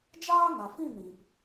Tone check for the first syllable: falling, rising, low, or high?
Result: high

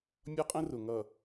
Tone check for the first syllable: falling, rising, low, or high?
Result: high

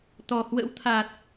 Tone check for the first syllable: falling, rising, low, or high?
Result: low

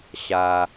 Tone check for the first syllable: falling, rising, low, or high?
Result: low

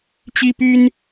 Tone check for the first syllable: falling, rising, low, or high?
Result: high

